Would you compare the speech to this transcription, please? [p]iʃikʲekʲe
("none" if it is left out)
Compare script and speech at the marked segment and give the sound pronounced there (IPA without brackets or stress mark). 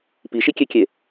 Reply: p